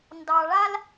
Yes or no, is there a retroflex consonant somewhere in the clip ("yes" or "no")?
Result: yes